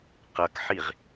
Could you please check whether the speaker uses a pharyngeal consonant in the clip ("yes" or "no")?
yes